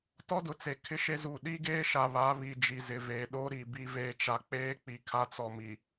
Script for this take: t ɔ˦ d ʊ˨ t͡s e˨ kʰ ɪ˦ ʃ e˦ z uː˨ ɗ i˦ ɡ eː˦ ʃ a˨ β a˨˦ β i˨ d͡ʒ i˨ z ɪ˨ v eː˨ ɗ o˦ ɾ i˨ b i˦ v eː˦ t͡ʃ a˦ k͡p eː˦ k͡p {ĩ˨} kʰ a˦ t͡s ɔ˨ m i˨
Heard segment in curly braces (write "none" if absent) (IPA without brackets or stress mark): i˨